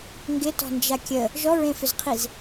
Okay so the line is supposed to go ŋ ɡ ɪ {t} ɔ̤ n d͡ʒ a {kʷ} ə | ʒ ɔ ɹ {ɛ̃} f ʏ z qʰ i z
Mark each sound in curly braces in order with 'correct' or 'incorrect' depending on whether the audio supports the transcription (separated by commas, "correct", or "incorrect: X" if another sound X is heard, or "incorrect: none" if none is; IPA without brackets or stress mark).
correct, incorrect: kʲ, incorrect: ẽ